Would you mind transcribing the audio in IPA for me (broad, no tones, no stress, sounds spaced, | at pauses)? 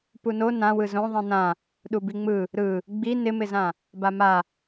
p u n o n ã w ɯ z õ ðˤ ĩ n ã | ɗ u b i ŋ͡m ɯ | ɾ ɯ | ɡ͡b i n ɪ m ɪ z ã | b a m a